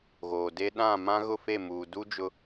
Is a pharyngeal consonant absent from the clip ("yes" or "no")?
yes